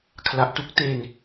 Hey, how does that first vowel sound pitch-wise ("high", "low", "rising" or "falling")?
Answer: low